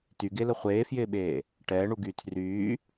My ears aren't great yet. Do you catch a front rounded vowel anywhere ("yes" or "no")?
yes